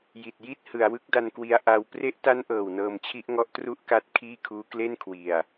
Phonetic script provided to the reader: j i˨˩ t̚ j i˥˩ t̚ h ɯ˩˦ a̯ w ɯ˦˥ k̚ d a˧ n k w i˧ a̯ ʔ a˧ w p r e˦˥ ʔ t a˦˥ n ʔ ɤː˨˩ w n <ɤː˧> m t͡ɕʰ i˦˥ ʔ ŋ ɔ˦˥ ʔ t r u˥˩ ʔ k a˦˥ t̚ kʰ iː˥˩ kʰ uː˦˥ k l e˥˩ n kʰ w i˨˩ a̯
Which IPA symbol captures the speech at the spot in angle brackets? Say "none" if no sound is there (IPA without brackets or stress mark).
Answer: ɤː˧